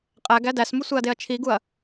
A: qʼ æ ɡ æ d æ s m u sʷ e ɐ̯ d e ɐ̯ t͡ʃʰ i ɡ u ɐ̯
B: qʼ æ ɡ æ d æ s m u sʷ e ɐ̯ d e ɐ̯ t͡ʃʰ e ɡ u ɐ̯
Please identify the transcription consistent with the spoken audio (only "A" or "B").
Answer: A